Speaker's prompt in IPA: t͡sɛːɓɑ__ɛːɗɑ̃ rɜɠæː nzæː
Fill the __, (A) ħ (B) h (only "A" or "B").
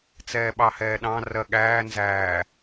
B